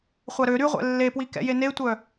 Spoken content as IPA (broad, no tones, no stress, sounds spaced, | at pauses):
χʷ a ɾ ø ɾ y ʁʷ ɛ̰ lː e p w i k ɛ̰ j e n e tʷ œ